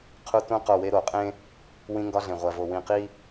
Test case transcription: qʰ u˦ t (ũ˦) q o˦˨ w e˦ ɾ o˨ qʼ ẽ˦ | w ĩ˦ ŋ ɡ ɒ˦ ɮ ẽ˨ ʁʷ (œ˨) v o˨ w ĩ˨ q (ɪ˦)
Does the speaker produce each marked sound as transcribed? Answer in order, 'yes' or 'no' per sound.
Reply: yes, no, no

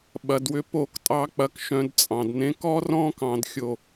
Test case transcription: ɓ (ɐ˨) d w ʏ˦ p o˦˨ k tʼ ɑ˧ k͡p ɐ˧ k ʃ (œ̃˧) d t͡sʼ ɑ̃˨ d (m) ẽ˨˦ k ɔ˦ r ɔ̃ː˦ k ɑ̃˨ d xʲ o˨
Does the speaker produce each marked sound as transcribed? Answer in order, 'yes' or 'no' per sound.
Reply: no, yes, no

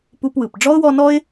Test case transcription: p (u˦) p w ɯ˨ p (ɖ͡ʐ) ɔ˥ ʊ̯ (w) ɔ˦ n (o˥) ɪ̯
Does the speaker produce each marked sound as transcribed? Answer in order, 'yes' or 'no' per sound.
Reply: yes, yes, yes, no

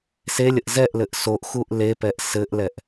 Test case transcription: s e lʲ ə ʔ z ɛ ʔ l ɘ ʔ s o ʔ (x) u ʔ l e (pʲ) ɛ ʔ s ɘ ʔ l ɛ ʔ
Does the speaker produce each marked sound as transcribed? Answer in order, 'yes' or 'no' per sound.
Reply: yes, no

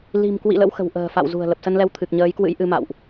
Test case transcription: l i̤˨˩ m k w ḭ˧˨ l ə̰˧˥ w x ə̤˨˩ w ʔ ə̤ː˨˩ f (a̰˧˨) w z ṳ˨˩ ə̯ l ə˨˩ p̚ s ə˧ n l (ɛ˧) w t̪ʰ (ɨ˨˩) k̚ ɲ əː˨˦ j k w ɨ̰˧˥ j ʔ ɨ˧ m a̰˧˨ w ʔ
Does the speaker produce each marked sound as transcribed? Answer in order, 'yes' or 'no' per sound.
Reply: yes, yes, yes

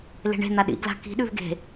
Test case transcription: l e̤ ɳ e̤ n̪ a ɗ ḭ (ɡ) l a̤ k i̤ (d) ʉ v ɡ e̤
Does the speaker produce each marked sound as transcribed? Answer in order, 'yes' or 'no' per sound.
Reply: yes, no

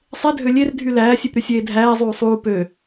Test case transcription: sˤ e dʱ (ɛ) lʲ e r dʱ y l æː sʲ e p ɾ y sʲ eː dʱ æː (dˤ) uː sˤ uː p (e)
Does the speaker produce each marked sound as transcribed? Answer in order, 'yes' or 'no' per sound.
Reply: no, no, no

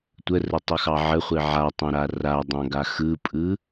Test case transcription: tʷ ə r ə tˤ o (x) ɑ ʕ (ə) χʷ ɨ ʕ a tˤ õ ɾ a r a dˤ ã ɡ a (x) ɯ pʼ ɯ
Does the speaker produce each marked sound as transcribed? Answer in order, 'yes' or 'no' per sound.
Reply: yes, yes, yes

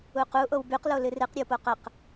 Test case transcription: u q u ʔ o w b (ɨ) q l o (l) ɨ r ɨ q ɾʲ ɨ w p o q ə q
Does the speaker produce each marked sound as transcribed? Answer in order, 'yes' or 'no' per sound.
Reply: no, yes

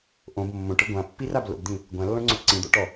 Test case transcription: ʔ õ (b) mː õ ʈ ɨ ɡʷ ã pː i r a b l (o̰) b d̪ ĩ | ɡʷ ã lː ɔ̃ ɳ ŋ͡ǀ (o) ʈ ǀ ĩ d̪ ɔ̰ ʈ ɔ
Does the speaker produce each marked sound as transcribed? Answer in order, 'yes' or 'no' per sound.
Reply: yes, yes, no

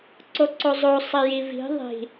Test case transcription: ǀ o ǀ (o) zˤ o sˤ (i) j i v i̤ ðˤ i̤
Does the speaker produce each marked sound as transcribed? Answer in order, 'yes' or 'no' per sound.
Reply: yes, yes

